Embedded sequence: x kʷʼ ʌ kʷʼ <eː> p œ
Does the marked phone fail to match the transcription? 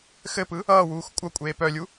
no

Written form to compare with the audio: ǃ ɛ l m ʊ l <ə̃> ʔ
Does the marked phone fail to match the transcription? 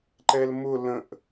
no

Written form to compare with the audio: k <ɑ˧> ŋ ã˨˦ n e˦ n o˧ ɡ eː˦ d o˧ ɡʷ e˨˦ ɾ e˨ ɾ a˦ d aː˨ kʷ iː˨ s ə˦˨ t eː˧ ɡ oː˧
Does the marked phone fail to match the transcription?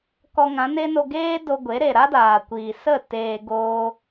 yes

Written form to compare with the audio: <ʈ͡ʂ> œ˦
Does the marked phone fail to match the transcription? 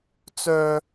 yes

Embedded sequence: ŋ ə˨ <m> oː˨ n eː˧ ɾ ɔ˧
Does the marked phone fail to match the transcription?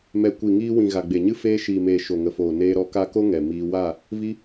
yes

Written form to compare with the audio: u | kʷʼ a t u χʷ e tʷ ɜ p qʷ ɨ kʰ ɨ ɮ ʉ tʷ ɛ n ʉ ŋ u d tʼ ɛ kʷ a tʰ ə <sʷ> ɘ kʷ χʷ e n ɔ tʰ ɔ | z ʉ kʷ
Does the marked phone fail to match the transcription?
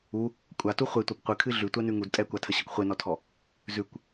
yes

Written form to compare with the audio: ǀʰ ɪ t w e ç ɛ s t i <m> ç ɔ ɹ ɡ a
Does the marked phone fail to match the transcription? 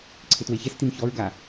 no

